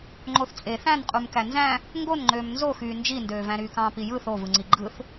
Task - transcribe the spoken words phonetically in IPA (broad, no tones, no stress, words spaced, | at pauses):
ŋ͡ǃoθt͡sʼe θæ̃nqʼumkæ nzæ̃ | ŋɡonŋ͡ǃøːm nzoxyː nd͡ʒindøːvæ̃ ɾyːkɑ̃ːpijɯ θovɯŋ͡ǀi ɡ͡ǃɯθ